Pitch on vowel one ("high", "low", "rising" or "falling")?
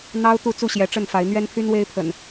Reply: high